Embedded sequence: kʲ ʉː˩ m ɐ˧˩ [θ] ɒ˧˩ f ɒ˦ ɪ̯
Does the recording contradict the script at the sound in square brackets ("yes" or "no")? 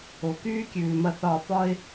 no